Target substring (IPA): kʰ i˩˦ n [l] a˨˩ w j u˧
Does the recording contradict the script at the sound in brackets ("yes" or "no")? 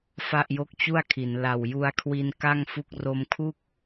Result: no